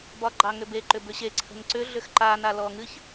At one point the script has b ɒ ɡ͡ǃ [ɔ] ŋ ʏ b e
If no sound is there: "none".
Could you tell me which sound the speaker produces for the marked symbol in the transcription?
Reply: ɑ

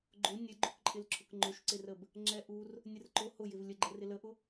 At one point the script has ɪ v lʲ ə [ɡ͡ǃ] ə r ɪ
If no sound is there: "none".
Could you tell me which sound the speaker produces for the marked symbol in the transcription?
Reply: ɡ͡ǃ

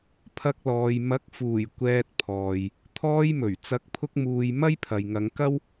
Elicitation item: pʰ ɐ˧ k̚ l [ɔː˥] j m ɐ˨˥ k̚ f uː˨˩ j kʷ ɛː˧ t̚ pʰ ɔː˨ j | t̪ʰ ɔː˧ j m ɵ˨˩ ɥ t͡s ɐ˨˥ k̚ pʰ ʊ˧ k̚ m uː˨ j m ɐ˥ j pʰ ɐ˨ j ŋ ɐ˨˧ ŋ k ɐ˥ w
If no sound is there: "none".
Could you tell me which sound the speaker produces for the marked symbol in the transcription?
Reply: ɔː˨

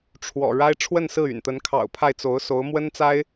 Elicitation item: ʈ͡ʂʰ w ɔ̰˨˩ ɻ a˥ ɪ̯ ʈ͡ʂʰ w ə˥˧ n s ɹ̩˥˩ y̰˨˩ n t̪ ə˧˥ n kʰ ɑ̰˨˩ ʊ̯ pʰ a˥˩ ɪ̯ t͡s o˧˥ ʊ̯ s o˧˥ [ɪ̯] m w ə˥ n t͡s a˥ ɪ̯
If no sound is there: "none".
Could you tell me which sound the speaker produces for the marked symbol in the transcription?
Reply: ʊ̯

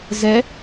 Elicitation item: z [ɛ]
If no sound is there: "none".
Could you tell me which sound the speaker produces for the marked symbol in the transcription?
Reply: ɛ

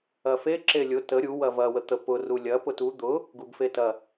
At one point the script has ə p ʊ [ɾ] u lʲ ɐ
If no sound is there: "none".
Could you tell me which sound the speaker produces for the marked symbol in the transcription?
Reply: r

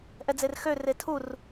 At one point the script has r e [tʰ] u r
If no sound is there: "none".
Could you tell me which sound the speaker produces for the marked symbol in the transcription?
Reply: tʰ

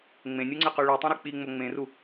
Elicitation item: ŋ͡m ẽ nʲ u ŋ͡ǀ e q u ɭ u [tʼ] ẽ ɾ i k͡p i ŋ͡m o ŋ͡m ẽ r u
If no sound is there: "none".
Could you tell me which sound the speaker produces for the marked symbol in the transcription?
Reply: tˤ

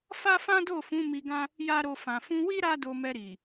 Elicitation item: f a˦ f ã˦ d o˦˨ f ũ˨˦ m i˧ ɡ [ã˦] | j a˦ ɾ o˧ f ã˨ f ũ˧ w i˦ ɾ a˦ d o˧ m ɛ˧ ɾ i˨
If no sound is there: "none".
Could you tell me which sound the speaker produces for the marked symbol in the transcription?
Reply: ã˦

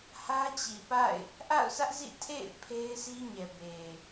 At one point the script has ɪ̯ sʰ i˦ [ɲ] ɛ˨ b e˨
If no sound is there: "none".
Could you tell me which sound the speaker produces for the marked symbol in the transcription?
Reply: ɲ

